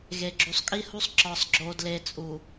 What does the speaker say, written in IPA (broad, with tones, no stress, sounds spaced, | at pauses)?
ɣ e˨ ɡ͡ǁ u˨ sˤ kʼ i˦ h u˦ sˤ ǁ ɒ˨ sˤ ɡ͡ǁ o˨ d l e˨ t͡sʼ u˨